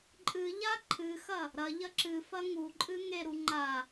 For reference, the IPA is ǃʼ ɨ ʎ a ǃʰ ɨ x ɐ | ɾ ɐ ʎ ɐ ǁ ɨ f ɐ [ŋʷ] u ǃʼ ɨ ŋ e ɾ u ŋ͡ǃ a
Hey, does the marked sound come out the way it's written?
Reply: no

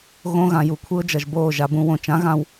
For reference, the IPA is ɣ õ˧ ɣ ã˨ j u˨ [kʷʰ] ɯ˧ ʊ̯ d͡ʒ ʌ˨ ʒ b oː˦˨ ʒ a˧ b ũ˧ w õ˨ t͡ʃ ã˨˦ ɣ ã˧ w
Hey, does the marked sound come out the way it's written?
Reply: yes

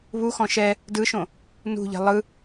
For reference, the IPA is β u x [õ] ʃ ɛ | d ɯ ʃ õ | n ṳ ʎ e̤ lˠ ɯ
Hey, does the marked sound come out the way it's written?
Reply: no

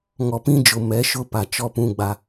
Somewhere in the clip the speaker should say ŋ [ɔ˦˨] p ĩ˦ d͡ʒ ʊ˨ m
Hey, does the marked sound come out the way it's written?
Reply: no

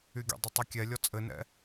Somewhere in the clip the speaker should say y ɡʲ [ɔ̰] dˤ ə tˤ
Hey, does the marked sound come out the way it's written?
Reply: no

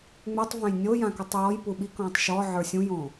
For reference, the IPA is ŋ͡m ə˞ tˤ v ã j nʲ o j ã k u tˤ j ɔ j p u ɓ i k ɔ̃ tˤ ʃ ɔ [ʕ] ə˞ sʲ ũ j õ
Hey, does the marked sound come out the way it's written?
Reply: yes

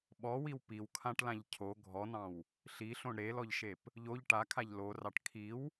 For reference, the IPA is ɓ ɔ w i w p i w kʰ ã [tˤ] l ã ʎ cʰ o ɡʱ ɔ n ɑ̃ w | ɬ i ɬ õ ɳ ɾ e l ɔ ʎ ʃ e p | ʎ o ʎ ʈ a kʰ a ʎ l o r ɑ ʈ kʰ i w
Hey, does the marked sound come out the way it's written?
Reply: no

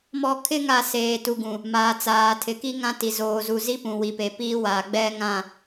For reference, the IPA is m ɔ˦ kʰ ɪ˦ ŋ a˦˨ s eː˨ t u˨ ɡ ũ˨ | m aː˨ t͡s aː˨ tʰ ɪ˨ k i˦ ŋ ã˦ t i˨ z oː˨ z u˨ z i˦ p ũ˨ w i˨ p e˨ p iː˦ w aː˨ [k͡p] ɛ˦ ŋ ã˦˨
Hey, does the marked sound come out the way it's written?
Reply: no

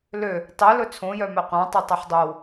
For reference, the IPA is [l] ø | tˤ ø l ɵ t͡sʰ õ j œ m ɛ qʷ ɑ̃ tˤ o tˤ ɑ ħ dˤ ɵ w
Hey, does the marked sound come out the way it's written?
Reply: yes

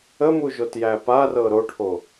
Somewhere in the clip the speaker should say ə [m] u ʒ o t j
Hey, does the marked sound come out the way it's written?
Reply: yes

